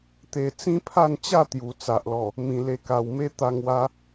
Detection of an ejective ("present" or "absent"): absent